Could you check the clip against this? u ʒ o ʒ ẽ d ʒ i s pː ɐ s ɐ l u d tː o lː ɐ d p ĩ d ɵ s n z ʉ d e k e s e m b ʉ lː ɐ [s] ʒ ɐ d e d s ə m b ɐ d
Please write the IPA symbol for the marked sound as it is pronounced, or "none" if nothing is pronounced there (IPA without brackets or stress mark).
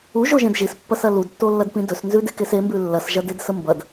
s